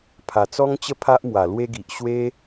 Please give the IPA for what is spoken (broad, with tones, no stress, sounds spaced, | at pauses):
pʰ a˨˩ t͡s ɔ˦ ŋ t͡ɕ ə˦ pʰ a˦ ʔ m w a˨˩ l w e˦ ɡ i˨ ʔ ɕ w e˦